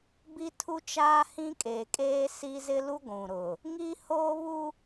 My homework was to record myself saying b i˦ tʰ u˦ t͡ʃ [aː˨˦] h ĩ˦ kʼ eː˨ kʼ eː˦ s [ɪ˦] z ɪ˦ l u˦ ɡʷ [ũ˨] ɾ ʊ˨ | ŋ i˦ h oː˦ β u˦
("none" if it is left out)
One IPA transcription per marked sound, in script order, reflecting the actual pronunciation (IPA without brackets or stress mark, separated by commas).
aː˦, i˦, ũ˨